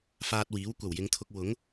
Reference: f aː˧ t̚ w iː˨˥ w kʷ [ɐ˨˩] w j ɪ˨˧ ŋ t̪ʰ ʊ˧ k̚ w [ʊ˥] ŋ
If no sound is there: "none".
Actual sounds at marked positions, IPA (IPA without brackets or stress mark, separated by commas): ɐ˨˩, ʊ˨˥